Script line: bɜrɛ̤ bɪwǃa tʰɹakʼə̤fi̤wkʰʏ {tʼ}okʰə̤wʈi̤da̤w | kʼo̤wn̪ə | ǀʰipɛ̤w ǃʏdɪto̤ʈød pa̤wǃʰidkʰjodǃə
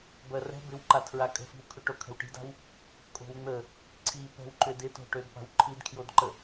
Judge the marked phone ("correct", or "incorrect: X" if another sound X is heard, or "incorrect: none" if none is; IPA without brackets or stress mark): incorrect: ʈ